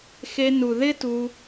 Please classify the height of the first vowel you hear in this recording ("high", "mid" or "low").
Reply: mid